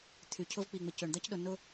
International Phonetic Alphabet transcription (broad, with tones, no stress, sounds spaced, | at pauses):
t̪ʰ y˨ cʰ ʊ˦ v k͡p i˨ ŋ͡m ɪ˨ c ø˨ ɳ d̪ ɐ˦ c ɗ ʊ˨ n ʊ˦